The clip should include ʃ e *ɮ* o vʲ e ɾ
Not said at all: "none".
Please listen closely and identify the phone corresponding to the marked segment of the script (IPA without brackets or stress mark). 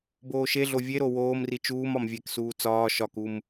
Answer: ɮ